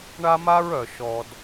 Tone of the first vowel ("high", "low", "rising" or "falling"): high